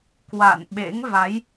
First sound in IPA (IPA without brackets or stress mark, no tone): k